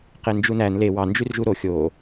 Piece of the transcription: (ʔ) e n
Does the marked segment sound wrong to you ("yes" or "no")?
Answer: yes